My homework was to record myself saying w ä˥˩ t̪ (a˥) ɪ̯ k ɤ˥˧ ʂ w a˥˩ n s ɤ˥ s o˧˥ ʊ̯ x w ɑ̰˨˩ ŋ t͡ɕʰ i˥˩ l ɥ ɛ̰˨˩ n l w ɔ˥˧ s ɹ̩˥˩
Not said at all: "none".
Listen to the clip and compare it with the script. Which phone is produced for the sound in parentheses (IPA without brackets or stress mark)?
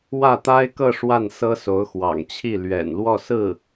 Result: a˥